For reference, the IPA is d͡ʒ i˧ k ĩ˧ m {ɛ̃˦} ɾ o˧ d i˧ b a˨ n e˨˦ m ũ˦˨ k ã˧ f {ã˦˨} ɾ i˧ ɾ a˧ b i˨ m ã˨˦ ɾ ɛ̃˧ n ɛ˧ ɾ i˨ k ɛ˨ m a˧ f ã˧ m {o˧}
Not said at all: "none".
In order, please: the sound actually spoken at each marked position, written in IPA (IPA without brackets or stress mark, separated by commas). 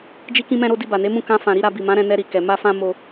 ɛ̃˧, ã˨, o˧